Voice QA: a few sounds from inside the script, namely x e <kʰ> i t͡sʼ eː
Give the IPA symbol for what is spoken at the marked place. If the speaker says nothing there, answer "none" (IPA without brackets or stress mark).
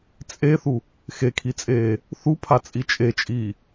kʰ